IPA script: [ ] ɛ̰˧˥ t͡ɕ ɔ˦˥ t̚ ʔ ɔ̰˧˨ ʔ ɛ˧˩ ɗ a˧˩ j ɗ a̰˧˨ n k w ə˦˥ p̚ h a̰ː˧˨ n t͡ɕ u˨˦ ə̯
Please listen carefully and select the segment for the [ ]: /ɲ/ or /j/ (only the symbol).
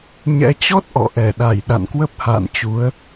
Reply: ɲ